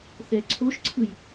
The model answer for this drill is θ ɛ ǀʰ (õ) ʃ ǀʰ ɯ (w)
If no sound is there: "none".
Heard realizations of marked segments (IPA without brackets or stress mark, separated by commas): o, j